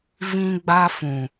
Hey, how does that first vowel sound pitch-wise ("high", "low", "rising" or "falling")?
high